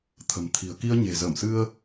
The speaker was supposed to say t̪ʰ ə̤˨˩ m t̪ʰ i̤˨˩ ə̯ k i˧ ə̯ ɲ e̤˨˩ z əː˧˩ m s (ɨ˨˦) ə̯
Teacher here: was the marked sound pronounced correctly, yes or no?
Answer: no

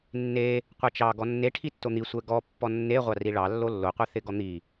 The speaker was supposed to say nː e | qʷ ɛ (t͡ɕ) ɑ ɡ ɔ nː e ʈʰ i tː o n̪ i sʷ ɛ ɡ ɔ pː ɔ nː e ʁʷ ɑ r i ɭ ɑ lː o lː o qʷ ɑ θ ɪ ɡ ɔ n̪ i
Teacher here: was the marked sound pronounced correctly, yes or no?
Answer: no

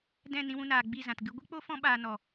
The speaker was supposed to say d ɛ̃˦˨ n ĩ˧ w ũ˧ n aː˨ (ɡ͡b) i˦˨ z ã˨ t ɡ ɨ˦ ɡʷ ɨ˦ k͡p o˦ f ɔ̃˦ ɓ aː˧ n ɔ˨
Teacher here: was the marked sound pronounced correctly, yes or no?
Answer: yes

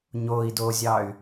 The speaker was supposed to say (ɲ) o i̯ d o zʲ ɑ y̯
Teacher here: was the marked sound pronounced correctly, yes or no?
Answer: yes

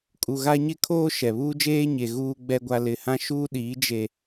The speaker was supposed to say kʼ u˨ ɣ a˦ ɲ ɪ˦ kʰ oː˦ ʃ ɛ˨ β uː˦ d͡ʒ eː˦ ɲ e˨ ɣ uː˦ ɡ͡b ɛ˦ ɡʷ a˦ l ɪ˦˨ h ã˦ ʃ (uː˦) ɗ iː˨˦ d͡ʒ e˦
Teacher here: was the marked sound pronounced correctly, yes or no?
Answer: yes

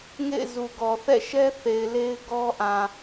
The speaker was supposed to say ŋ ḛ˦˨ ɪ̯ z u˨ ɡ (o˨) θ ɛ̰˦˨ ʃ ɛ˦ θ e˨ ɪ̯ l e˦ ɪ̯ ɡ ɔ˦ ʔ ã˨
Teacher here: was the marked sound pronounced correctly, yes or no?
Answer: no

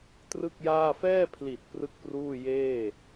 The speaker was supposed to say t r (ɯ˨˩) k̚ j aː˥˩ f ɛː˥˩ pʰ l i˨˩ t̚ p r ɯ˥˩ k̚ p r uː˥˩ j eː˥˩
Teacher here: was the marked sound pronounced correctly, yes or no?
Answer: no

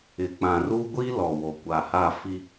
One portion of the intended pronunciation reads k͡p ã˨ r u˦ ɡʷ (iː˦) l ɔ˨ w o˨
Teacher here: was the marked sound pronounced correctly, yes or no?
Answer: no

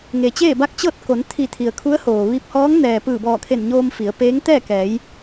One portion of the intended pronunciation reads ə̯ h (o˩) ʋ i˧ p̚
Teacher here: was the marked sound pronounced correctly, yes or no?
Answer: no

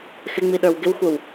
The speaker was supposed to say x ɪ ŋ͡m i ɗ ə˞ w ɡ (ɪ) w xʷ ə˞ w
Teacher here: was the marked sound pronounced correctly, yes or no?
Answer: yes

